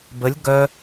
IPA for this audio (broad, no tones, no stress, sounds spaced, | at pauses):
b ə lʲ ɡ œ